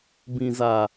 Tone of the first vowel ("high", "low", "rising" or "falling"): low